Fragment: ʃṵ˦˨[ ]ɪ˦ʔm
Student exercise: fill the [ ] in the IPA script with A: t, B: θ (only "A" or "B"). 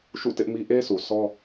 A